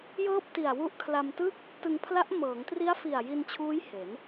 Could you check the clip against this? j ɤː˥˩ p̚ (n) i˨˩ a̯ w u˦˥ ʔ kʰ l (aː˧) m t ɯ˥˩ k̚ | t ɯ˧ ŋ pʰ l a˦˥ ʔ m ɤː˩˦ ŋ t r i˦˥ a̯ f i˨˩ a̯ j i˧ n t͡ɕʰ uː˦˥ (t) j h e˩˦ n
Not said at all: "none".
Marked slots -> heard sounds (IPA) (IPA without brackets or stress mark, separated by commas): t, a˧, none